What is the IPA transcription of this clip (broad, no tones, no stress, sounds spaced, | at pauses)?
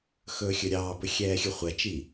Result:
x ɵː xʲ ɵ ɾʲ ɑː b ɵ xʲ ɛː xʲ ɵ χʷ ɛ t͡ʃ i